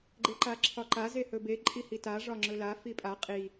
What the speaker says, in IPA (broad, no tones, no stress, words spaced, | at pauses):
ɡ͡ǃeǃaǁʰɒǃa zehɵbe ǃʼihita ʐɒŋ͡ǁɵla fipʼa qʼi